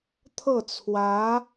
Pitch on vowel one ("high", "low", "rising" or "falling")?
falling